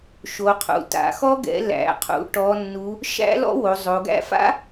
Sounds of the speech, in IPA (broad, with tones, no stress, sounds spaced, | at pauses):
ʃ o˩˧ qʰ ṵ˩˧ t a̰˩˧ x ɔ˦˥ ɡ ɛ̰˩˧ l æ̰˩˧ qʰ ṵ˩˧ ʈ ɔ˩˧ nː u˩˧ | ʃ æ̰˦˥ l ɔ̰˦˥ w o˩˧ zˤ o˩˧ ɡ æ̰˦˥ f a̰˦˥